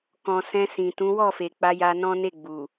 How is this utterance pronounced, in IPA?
k ɔ̃˨ s ɛ̃˧ s ĩ˨ t ũ˨˦ w ɔ˦˨ f e˨ k͡p a˧ j a˧ n ɔ̃˦ n e˦˨ ɡ͡b u˨

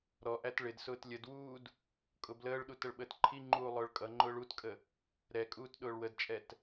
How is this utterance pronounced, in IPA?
ɾ ɔ ʔ æ t ɭ ɪ d s ʊː t lʲ ə d w uː d | kʼ ʊ b l əː ɭ ɗ u t ə ɭ ɓ əː t ǃʰ i ŋ͡ǃ uː lˠ ʊː ɭ kʼ ʌ ŋ͡ǃ ʊː ɭ u t kʼ ə | ɾ ɛ kʼ uː t ɗ ʊː ɭ w ə d t͡ʃʼ ɛ t

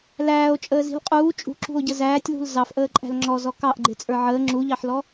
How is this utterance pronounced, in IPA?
l æː o̯ t͡ʃʼ əː z i̤ l qʼ uː t͡ʃʼ ṳ ǁ ṳ o̯ ɟ ə z æː tʲ l ṳ l z ɑ f ʔ əː ǃʼ æ̤ l ŋ͡ǁ ɔ z ɔ k ɑ ʔ ɡ͡ǃ ɪ t͡sʼ ə˞ ʕ əː ŋ͡ǁ u ʎ ɑ ħ l ɔ

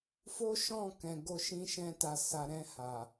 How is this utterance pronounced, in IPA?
f o˦ ʃ ɔ̃˦˨ k ɛ̃˨ ɡ o˧ ʃ ĩ˧ ʃ ɛ̃˧ t a˨ s a˨ ɾ ɛ̃˧ h a˨

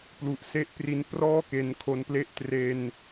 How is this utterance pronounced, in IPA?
p l u˨˩ ʔ s e˦˥ ʔ p r i˧ n p r ɔː˥˩ k e˧ n kʰ o˧ n p l e˦˥ ʔ t r e˧ n

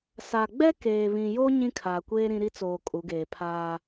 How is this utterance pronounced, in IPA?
s a˨ ɡ͡b ɛ˦ k eː˨ β ĩ˨ j o˦ ɲ ĩ˦ kʰ aː˨ kʷ eː˦ ɾ ĩ˦ ɾ i˦ t͡s oː˨ kʼ u˨˦ ɡ eː˨ pʰ aː˦

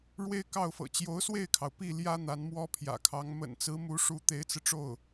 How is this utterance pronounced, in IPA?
ɻ w e˥ ɪ̯ k ɑ˥˩ ʊ̯ f ɤ̰˨˩ t͡ɕ j o˧˥ ʊ̯ s w e˥˩ ɪ̯ kʰ ɑ˩ ʊ̯ p i˥˩ l j ä˥ n̪ a˧˥ n m w ɔ˥ pʰ j ä̰˨˩ kʰ ɑ˧˥ ŋ m ə̰˨˩ n t͡s ɹ̩˧˥ m u˧˥ ʂ u˧˥ t̪ e˧˥ ɪ̯ t͡s ɹ̩˧ ʈ͡ʂ o˥˩ ʊ̯

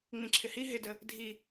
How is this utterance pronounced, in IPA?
ŋ͡m ĩ ǁʰ ɪ h i ɦ ɪ d ə | dʱ i

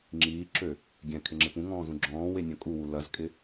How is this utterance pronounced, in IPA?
ŋ͡ǁ iː ǁ ø | ɡʲ ɛ̃ kʰ ɪ ŋ͡ǁ ɪ p ũ ŋ ɔ̃ː z ũ ɡ͡ǁ ɔ̃ː w e nʲ œ̃ kʼ u w u l ɐ z kʼ ɪ

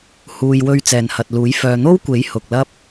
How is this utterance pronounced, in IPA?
h uː˨ j w ɵ˧ ɥ t͡s ɛː˨ n h ɐ˨ t̚ l uː˨˥ j f œː˨ n̪ o˥ w kʷ e˨˥ j h ʊ˨ k̚ l ɐ˥ p̚

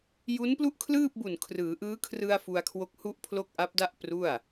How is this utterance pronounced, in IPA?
j u˦˥ n p l u˥˩ ʔ kʰ l ɯː˥˩ p̚ b u˨˩ n kʰ r ɯː˩˦ ʔ ɯː˦˥ kʰ r ɯ˧ a̯ f u˧ a̯ kʰ w o˦˥ k̚ h u˥˩ ʔ pʰ l o˥˩ k̚ ʔ a˦˥ p̚ d a˥˩ ʔ p r u˥˩ a̯

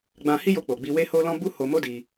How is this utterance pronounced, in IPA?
ɡ͡b ã˧ h i˦ j o˧ k͡p o˨ ɡ͡b i˧ w e˦ h o˦ l ɔ̃˦ b u˦ h o˧ m o˦ d i˧

